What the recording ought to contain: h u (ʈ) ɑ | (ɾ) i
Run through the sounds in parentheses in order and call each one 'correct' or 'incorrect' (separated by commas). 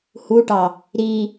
correct, correct